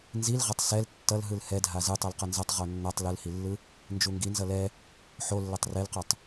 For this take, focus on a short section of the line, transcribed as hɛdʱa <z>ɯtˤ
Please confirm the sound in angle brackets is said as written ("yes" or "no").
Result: yes